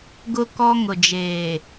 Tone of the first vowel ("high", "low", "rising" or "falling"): high